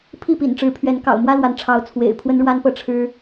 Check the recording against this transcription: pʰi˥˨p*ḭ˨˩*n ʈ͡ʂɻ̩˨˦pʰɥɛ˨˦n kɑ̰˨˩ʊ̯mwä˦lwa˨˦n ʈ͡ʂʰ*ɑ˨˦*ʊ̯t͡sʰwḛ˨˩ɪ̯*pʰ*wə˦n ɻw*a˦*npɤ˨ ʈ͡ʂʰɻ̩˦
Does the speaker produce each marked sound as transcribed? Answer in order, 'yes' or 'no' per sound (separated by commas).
yes, yes, yes, yes